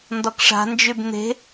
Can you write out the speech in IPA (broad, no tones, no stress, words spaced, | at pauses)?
ndɔkʂa̤ nd͡ʒybn̪e̤